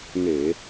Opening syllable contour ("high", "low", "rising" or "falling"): low